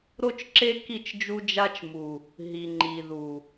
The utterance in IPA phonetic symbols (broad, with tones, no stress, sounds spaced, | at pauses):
ɾ o˦ t͡ʃ ǁ e˦ k i˦˨ t͡ʃ d͡ʒ u˦ d͡ʒ a˦ t͡ʃ m u˨ | ɦ i˨ ŋ͡ǃ i˨ ð u˨